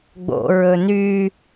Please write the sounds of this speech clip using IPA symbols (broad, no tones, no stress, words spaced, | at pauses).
ɡ͡bo̰ ɹɵny